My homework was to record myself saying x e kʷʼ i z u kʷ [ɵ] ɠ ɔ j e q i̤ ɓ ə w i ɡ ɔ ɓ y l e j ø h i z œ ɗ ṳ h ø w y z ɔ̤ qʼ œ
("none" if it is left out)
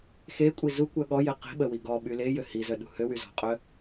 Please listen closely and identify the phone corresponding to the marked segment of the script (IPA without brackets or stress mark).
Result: œ